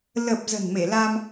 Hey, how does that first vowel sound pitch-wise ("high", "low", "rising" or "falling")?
low